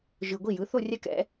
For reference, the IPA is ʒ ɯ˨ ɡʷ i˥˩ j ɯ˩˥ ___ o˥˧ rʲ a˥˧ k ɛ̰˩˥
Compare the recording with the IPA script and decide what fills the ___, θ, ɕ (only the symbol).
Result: θ